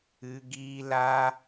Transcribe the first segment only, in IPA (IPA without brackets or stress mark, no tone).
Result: ɨ